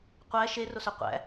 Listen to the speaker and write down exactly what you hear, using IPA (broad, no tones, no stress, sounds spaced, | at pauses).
qʷ æ ʃ e r o s ø qʷ æ̰